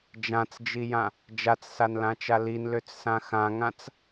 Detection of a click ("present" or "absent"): absent